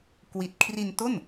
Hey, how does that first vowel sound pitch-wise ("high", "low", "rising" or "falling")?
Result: low